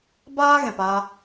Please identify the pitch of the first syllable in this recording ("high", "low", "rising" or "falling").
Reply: high